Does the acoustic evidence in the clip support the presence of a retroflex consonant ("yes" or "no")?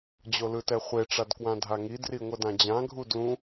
yes